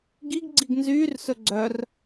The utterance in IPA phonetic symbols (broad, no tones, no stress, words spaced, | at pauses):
ɡiɡɡ͡ǀiɡ nzyːrsɵ ɡ͡ǀœr